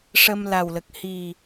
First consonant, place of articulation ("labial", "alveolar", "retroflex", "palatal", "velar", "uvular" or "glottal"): retroflex